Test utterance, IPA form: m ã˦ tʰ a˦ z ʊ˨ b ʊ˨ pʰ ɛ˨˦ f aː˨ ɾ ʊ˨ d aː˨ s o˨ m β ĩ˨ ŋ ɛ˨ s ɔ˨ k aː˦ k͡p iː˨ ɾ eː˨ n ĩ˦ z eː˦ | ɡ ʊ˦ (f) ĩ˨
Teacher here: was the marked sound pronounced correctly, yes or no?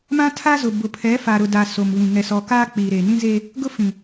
yes